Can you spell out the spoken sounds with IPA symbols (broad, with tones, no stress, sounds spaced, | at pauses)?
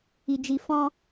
i˧ d͡ʒ i˧ f ɔ̃˧